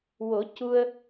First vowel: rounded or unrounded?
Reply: rounded